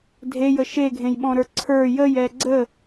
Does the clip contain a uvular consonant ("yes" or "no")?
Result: no